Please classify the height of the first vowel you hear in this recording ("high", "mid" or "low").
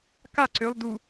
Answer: low